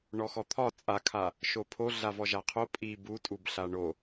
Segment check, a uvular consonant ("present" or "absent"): present